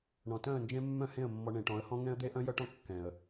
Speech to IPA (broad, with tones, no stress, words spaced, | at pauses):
ɳɔ̃˨tœ̃˦˨ə̯nd͡ʒẽ˦ mːœ̃˦hẽ˦˨ə̯ mːɔ˨ ɳẽ˨ʈɔ̃˨˦ə̯hɔ̃˦ ŋɛ̃˦ə̯d̪e˦ ʔœ̃˦jœ˦ʈɔ̃˦ kːɛ̃˨ə̯